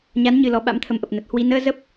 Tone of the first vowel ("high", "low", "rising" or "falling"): rising